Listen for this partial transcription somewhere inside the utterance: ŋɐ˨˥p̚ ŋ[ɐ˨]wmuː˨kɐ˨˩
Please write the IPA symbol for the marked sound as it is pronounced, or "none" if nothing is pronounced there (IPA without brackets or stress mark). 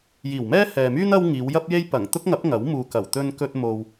ɐ˨˥